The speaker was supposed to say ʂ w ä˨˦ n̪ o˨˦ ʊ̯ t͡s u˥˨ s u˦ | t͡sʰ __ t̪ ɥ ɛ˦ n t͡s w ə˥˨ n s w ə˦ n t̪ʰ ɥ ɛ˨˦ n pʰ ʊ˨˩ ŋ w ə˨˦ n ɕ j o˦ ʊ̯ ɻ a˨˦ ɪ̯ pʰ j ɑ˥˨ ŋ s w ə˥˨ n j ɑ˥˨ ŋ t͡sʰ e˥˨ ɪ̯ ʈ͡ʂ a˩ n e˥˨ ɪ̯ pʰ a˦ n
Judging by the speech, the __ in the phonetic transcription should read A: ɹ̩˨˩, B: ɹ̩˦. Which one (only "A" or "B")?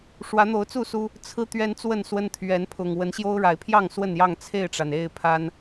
B